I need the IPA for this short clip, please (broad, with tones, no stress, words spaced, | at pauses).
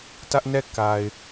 tä˦ʔnɛ˦˨ ka˨ɪ̯